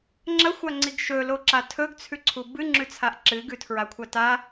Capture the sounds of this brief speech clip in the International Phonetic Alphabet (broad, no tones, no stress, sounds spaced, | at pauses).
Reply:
ŋ͡ǁ ɐ xʷ a ŋ͡ǀ i ɡ ʃ ɵ l o ǁ a tʰ ɵ ɡ t͡sʰ ʉ ǀʰ u b ɨ ŋ͡ǁ ʉ t͡sʰ a ʔ ǁ ɨ ɡ ʉ tʰ ɹ a kʷʰ a t a